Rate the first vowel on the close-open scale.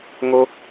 mid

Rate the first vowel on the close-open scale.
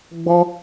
mid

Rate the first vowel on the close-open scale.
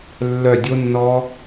mid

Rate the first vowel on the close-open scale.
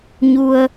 close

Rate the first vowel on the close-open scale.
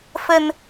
mid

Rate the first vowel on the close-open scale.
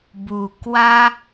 close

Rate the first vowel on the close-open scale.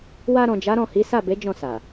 open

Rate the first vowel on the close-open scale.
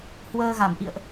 mid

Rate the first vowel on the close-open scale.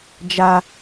open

